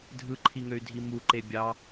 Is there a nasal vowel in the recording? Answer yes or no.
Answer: no